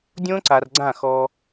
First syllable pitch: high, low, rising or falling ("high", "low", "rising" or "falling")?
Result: high